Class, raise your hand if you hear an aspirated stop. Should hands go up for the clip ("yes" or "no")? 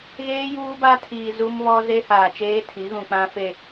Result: yes